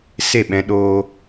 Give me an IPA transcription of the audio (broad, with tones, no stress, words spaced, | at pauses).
se˦˨ɓɛ̃˧ɗoː˧